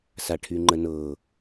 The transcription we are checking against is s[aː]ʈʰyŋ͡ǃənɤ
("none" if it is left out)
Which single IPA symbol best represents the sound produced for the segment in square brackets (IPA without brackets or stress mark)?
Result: a